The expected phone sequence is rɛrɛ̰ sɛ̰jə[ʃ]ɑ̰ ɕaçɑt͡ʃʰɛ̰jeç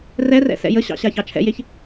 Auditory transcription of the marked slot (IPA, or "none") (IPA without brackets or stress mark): ɕ